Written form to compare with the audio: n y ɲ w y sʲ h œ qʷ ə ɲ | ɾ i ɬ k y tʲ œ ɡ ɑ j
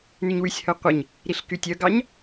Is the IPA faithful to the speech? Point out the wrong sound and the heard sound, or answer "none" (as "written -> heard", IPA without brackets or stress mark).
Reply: j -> ɲ